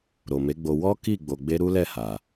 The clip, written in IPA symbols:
ɾ o˨ m e˨˦ ɡ͡b o˧ w ɔ˦ k i˦˨ ɡ͡b o˧ ɡ͡b e˦ ɾ u˦ l ɛ˦˨ h a˨

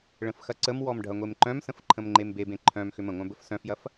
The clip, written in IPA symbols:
ɭ ə̃ f x ɐ ǀ ə m w ɔ m ɖʱ ɐ ŋʷ e m ǃ œ̃ m s ə̃ f ǃʰ ə̃ m ŋ͡ǃ e m b e b ẽ ǃʰ œ̃ m x ʏ m ə̃ ŋʷ œ̃ b ə f s œ̃ f j ɐ f

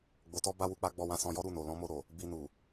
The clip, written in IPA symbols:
ɡ͡b o˧ t ɔ˦ b a˦ w u˧ k͡p a˦ ɡ͡b ɔ˧ w ã˧ s ɔ̃˧ j ɔ˦ ɾ u˦˨ n o˨ l ɔ̃˨˦ m o˧ ɾ o˨ | b i˧ n u˨

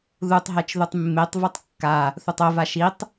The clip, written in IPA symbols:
ð u tˤ ɦ ɛ t͡ʃ ð u tˤ mː e tˤ v u tˤ kː a | θ u tˤ o v a ʃ i tˤ

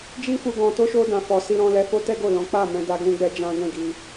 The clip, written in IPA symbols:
d͡ʒ i˦ f u˧ ɡ ɔ̃˧ t o˦ ʃ o˦ d ã˧ f ɔ˧ s i˧ ɾ ɔ̃˧ l ɛ˧ f o˦ t ɛ˦ ɡ o˦˨ l ɔ̃˨˦ k͡p a˦˨ m ɛ̃˧ d a˦ ɡ ũ˦ ɡ͡b ɛ˦ d͡ʒ ã˦ ɡ ɛ̃˦˨ ɡ i˧

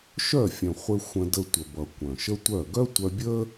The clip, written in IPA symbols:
ʃ œ˦˨ fʲ œ̃˨ χʷ ɘ˧ xʷ ə̃˧ d ə˧ tʷ ə˨ b ʌ˨ kʷ œ̃˨ ʃ ə˦ tʷ œ˦˨ ɡ œ˦ tʷ œ˧ bʲ ə˦

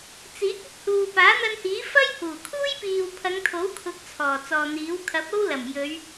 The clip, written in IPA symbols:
t͡s iː˨˥ k̚ ɪ˥ k̚ h uː˨ p aː˨˥ n̪ ɐ˧ n h iː˨˥ f ɐ˥ j h uː˨˩ kʰ uː˥ j p iː˨ w pʰ ɐ˨˧ ŋ t̪ʰ o˨˥ w kʰ ʊ˧ k̚ t͡sʰ ɔː˨˩ t͡s ɔː˨ n̪ iː˨˥ w kʰ ɐ˨˥ p̚ o˥ w l ɐ˨˩ m j ɵ˨˧ ɥ

